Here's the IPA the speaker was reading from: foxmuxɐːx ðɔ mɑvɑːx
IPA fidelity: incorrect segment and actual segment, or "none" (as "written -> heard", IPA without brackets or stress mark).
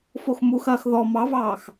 none